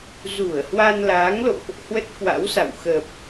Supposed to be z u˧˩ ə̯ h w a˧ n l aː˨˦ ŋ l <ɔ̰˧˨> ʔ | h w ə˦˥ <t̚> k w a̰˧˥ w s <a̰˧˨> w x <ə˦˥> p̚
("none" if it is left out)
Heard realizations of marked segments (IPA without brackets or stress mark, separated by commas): o̰˧˨, t̚, a̰˧˨, ə˨˩